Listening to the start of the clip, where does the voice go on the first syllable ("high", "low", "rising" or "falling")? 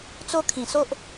high